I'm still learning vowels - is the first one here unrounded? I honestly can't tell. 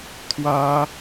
yes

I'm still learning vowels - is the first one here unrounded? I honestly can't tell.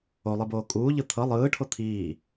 no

